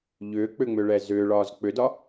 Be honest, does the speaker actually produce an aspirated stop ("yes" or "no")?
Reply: no